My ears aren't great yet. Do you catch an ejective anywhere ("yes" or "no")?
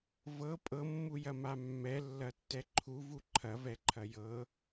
yes